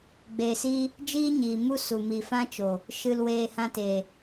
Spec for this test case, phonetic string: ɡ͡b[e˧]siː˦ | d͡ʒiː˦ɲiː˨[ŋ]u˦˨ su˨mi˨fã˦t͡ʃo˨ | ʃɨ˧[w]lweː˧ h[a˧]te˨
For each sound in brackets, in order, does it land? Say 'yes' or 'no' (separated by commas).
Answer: yes, no, no, no